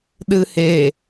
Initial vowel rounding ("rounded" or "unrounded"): unrounded